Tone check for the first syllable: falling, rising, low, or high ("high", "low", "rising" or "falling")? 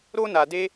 high